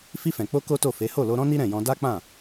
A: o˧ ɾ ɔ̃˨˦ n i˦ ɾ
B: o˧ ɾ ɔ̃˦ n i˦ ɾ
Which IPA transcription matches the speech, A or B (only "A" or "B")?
B